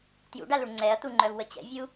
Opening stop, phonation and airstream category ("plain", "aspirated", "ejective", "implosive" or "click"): plain